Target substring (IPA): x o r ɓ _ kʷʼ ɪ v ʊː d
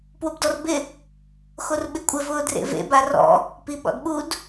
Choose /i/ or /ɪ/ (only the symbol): ɪ